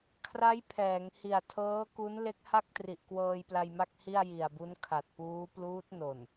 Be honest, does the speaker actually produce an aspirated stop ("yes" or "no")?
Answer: yes